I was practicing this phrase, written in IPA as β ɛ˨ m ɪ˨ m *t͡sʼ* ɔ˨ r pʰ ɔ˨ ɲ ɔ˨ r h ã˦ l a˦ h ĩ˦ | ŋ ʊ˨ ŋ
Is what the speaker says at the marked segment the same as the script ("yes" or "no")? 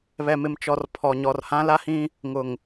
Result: no